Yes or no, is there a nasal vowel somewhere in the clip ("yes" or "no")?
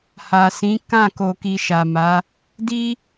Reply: yes